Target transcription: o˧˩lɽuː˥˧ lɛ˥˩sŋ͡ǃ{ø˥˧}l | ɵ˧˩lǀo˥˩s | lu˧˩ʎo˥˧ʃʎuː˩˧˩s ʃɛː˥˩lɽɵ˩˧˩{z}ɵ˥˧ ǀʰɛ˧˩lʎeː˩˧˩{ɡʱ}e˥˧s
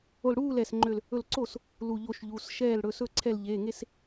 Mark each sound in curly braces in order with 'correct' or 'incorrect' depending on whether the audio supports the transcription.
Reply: correct, incorrect, incorrect

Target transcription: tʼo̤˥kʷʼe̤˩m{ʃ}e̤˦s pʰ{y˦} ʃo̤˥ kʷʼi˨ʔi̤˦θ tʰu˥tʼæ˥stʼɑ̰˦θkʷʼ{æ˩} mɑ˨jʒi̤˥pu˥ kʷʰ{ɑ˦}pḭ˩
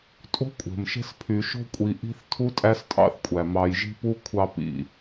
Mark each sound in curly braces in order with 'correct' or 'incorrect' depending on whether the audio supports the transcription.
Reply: correct, incorrect, correct, correct

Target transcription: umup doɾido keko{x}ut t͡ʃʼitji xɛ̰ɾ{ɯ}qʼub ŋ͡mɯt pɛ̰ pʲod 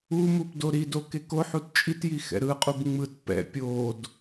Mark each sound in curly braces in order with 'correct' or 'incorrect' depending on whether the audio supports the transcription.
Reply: incorrect, correct

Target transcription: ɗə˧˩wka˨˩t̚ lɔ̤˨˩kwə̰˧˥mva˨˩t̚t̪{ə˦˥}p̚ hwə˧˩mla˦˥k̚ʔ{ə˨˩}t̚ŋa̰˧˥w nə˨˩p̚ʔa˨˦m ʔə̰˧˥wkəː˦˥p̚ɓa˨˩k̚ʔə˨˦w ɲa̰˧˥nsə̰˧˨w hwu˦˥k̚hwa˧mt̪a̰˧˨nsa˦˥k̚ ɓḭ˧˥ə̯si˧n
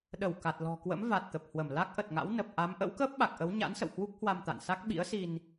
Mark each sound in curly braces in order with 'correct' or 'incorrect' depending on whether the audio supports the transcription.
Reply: incorrect, correct

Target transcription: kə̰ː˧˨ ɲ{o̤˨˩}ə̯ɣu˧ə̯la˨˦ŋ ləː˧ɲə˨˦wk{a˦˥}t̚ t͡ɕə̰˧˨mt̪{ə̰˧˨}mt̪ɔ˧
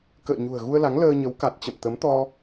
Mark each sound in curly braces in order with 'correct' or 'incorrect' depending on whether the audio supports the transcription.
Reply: incorrect, incorrect, incorrect

